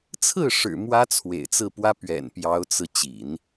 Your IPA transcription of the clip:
t͡sʰɹ̩˥˩ʂɻ̩˨˩ mwä˥t͡sʰwḛ˨˩ɪ̯t͡sɹ̩˥˩ pwä˥ pɥɛ̰˨˩npjɑ˧˥ʊ̯t͡sɹ̩˧ t͡ɕḭ˨˩˦n

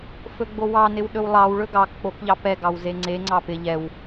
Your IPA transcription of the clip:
fɵɡ͡bowɑnɪw ɗɵwlˠɑwɭɵ ɡɑk k͡pok ʎɑpɛɡɑw zeŋ͡ǀeŋ͡ǀɑ pɪ ʎɛw

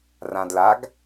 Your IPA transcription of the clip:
rãdlaɡ

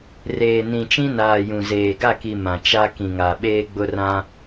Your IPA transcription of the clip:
reː˨nĩ˨t͡ʃĩ˦ naː˨jũ˨zeː˨ ɡa˦˨ki˨ mã˨t͡ʃa˦ kĩ˨ŋa˨ɓeː˦ ɡ͡bʊ˦rã˦

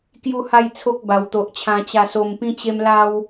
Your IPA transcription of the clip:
kju˥˧ha˥˧jt͡sʰo˦k̚ ba˨˩wt̪o˨ʔt͡ɕʰã˧ t͡ɕa˧so˧mpĩ˦t͡ɕe˦m la˦w

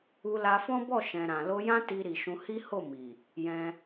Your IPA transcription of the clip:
u˧la˧fɔ̃˦bɔ˦˨ ʃɛ̃˨ɾã˨lo˧jã˦ ti˧ɾi˨ʃũ˧ hi˦ ho˦˨mi˨ | jɛ̃˧

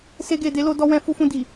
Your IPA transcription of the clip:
se˧ɡe˨de˨˦lo˧ dɔ˧wɛ̃˧ fu˧fũ˧ di˨

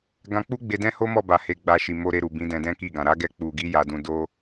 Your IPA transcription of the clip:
ɡã˧k͡pu˦ ɡ͡be˧dɛ̃˦ho˦mɔ˦˨ ba˧he˧ɡ͡ba˧ ʃi˨ mo˧ɾe˧ ɾu˨bĩ˨˦ dɛ̃˧dɛ̃˦ki˦˨ɡã˨ ɾa˨˦ɡɛ˧ k͡pu˨ɡi˨˦ ja˧dũ˧ do˦

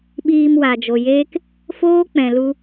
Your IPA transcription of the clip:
ɓiː˧m wa˨d͡ʒo˨jeː˦k | foː˦k͡pɛ̃˨ lu˧

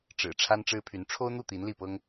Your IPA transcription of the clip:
ʈ͡ʂɻ̩˨˩ ʈ͡ʂʰa˥nʈ͡ʂɻ̩˥pʰy˧˥n ʈ͡ʂʰo˥ʊ̯n̪u˥˩ t̪i˧˥nli˥˩pɤ˥ŋ

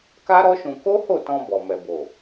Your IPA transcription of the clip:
ka˦ ɾɔ˦ʃũ˧ ko˦ho˦˨tɔ̃˧ bɔ˨mɛ˨bo˨

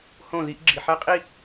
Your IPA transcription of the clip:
hõ˦˨ði˦ʔ ɡ͡ǁi˨ħæ˦qʼi˦

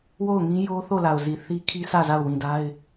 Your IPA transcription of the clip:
wo˦˨ʊ̯ ŋĩ˦jo˦ θo˦˨la˨ʊ̯zi˨ θi˦kʰi˦ sä˦˨za˦˨ʊ̯wĩ˨da˦ɪ̯

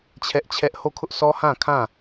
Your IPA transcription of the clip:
t͡ɕʰɛ˦ʔt͡ɕʰɛ˦ʔ ho˦˨kʰʊ˦ʔsʰɔ˦ hã˦˨kʰã˦˨

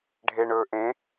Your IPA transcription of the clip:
ɖʱeɳɵː ʔẽ

